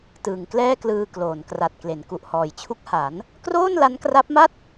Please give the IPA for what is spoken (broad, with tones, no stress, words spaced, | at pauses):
tɯː˨˩ŋklɛː˥˩klɯː˧kloː˩˦n kra˨˩t̚kle˩˦nku˨˩ʔ hɔː˩˦jt͡ɕʰu˦˥k̚ ha˩˦n | kroː˥˩nla˦˥nkra˦˥p̚ma˥˩t̚